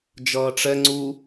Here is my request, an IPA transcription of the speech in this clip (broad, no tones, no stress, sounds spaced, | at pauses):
d͡ʒ ʌː ʈ͡ʂ ɛ ŋ͡ǀ u